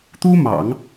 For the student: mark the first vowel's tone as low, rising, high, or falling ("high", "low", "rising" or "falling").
high